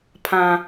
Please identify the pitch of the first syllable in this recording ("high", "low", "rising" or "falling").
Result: low